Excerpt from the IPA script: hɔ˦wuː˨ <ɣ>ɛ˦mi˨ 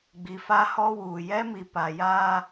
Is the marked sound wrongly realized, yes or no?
yes